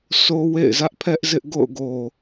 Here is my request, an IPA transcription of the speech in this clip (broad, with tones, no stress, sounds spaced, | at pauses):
s o˦ w ḛ˦˨ ɪ̯ z ä˦ ʔ pʰ ɛ˦ ʔ z ɪ˦ ʔ ɡ o̰˦˨ ʊ̯ ɡ o˨